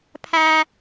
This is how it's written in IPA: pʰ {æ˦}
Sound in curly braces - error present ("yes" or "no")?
no